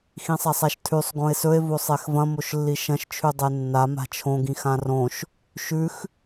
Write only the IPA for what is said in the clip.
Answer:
xĩsˤasˤaʃtʰʉsˤ ɡõe̯sɵe̯ vosˤexvɐ̃ moʃlːiʃɐ̃ʃ t͡ʃʰʉdˤenːa ma̤t͡ʃʰõ ɡĩxãrõʃ | ʃʉx

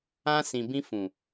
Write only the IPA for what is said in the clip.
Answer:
ã˧ sĩ˨bĩ˧ fũ˨

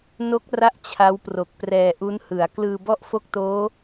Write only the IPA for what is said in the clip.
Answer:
no˦˥k̚ra˦˥ʔ t͡ɕʰa˦˥wpro˨˩k̚prɛː˧ʔu˦˥n hɯ˩˦a̯ klɯː˧bɔ˥˩ʔfo˥˩k̚toː˦˥

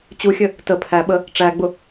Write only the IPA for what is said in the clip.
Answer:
t͡ɕuxʲə | tə pʰæɓə | ʈ͡ʂæɡ͡bʊ

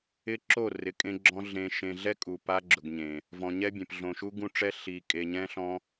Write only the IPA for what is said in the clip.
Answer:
ɪ˦ǁo˦˨ rɪ˨kʼẽ˦ɡ͡ǁɔ̃˦ ɮẽ˨ ʃẽ˨ɮɛ˦ kʼu˨pa˦ɡ͡ǁʊ˨ɡɲẽ˨ | vɔ̃˨ɲɛ˦bʲẽ˨p ɮõ˨ʃu˦ɡũ˦ʈ͡ʂɛ˦ ɬi˨ kʼe˨ɲɛ̃˦ ɬɔ̃˦

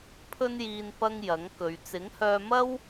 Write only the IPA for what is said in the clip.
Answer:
pʰɵ˥njiː˧n pɐ˧ŋ jɐ˨˥ŋkɵ˨˧ɥ t͡sɪ˨˥ŋhœː˧mɐ˥w

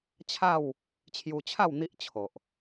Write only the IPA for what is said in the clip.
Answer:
t͡ɕʰa˥˧w | t͡ɕʰju˧t͡ɕʰa˥˧w n̪i˦ʔt͡ɕʰo˨ʔ

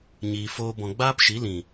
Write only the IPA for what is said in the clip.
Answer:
ɲiː˨foː˧ bɔ̃˨ɡ͡baː˦pʃi˨˦lĩ˨

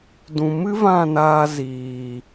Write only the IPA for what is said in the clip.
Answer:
dũ˨mɨ˦ vã˦˨naː˧ ziː˨

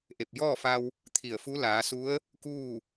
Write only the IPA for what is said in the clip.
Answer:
ʔe˧˩p̚jɔː˥˨fa˧w | t̪ʰi˧˩ə̯fu˧˥ laː˩˧su˧˥ə̯ | kuː˥˨

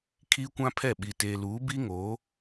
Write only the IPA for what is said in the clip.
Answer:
kʰiː˦kʷã˦pʰɛ˦˨ ɓi˨ teː˨luː˨˦bi˦ŋoː˨˦

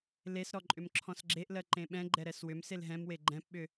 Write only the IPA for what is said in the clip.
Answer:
lesɾɔ ǃʼʏmǁʰɔ̃sɡ͡ǁeʔlɜ ǃẽɓɛ̃ɡ͡ǃɛ ɾɛswʏmsel ɦɛ̃mwe ɡ͡ǃɛ̃pɓʏ

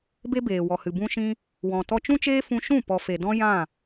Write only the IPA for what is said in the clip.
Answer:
be˦beː˨ wɔ˨hɨ˨ bũ˧ʃĩ˧ | wɔ̃˨ tɔ˧t͡ʃũ˦t͡ʃeː˦ fũ˧ʃũ˦˨ pɔ˨fe˨ dɔ̃˦jã˦˨

